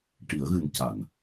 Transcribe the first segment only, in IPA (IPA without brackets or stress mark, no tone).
ʈ